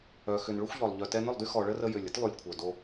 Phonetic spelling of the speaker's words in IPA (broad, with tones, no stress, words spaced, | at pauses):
œ˨ xʏ˨n ɭʏ˦xʷʎɔ˨lˠ ʎœ˨tɛ˧nʏ˦˨lˠdy˦ xɔ˨ɭə˦rə˧ jʏ˨lʲə˦tlˠy˨lʲkʷʰœ˨ do˧